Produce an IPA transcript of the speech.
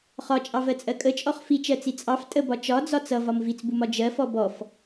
χ ɒ t͡ʃʼ ɑ v ɜ t͡sʼ ɜ kʼ ə t͡ʃʼ ɔ χ f i t͡ʃ ɜ t͡s i t͡sʼ ɑ f tʼ ə b ɒ t͡ʃ ɒ d͡z ɒ t͡s ʌ v ɒ m v i t͡s b u m ɒ d͡ʒ ɜ f ɔ b ɔ f

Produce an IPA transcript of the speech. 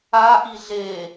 a ʔ i ɮ e

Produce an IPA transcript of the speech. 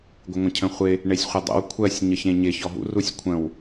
ɡʷ ɪ ŋʷ ə̃ cʰ ə̃ χʷ ɪ | ɳ e sʲ χʷ ə dˤ ə̰ w kʷʰ ɜ sʲ ɲ ə ç ẽ ɲ ɪ ç ɔ ɦ ṵ r u sʲ kʷʰ ə̃ w

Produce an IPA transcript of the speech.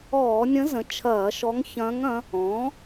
ɔː˧˩˧ nʲ ə̃˧˥ z ə̃˩˥ t͡ʃʰ ɐː˧˩˧ ʃ ɔ˧˥ ŋ ç ɐ̃ː˧˥ ŋ ɐ̃˧˥ | ɔ̃ː˩˥

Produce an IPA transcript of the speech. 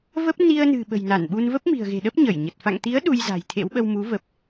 v ə˦˥ p̚ n i˧ ə̯ n ɨ̤˨˩ ɓ ə̤˨˩ j n a˧˩ n ɓ u˧ n v ə˦˥ p̚ m i̤˨˩ ə̯ ɣ e̤˨˩ ɗ ə˦˥ p̚ ɲ ə˧˩ j ɲ ə˨˩ t̚ f a̰˧˨ ŋ t̪ i˨˦ ə̯ ɗ u˧ j z a̤˨˩ j t̪ʰ ḛ˧˥ w ɓ ə˧ w m u˨˦ v ə˨˩ p̚

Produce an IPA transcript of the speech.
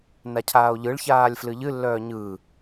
n a cʰ aː o̯ ʎ ɯ ɭ ç aː lʲ f l ɨ ʎ ɨ lː œː ɲ ɯ

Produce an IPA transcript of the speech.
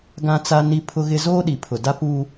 ɡ ã˦ t͡s a˦ n i˦ pʰ ʊ˦ ɣ ɪ˦ z oː˦ ɗ i˨ pʰ ʊ˨ d a˦ p u˦

